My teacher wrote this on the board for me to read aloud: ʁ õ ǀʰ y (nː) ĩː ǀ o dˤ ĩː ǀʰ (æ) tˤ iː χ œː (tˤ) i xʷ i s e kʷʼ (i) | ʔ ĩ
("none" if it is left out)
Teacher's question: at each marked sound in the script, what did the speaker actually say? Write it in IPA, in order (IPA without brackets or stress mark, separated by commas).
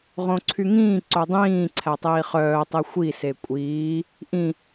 ŋ, æ, tˤ, iː